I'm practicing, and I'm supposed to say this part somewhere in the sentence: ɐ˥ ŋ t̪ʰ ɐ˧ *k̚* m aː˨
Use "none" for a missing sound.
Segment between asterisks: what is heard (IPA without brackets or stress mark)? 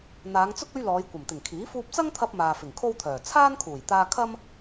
p̚